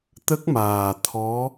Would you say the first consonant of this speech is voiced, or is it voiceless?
voiceless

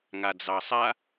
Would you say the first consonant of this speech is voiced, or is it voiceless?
voiced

